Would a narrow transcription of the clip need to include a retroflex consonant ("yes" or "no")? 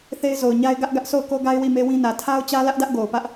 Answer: no